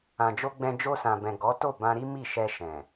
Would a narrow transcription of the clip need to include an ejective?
no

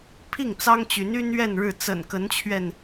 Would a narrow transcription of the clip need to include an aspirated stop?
yes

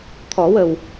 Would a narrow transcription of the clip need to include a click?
no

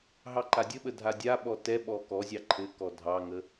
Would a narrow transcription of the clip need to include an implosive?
yes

